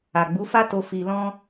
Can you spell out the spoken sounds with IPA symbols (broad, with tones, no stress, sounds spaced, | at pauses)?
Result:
a˨ ɡ͡b u˨˦ f a˦ t o˧ f i˧ l ɔ̃˦